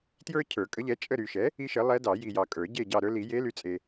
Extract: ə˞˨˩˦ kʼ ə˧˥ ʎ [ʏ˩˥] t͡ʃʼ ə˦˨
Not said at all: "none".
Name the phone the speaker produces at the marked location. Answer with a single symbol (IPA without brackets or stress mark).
ɛ˩˥